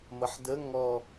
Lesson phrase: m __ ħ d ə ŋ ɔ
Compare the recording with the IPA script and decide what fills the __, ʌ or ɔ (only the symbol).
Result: ʌ